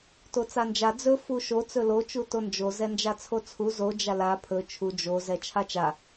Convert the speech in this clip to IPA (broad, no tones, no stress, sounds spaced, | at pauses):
t o t͡s a n d͡ʒ a d͡z ɵ f u ʃ o t͡s ɵ l o t͡ʃ u t o n d͡ʒ o z ɛ n d͡ʒ a t͡sʰ o t͡sʰ u z o d͡ʒ a l a pʰ ɵ t͡ʃʰ u d͡ʒ o z ɛ t͡ʃʰ a t͡ʃ a